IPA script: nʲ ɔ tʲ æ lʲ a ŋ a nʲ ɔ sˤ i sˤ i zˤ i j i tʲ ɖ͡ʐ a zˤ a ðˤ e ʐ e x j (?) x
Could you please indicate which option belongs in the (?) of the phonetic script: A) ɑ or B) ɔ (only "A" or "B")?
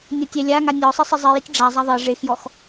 B